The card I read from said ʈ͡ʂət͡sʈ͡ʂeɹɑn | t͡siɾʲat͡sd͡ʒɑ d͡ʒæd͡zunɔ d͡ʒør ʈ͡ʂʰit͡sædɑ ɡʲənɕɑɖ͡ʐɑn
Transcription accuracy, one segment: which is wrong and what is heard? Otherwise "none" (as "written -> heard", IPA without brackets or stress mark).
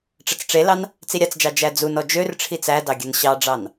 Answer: ɹ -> l